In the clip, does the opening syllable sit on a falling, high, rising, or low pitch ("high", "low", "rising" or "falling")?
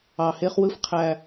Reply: low